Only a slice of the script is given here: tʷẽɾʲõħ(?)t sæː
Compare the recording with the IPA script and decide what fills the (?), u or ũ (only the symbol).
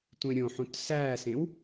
ũ